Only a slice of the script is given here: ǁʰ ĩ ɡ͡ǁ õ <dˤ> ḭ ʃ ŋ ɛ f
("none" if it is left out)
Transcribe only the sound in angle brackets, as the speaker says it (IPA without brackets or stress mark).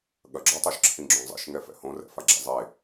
zˤ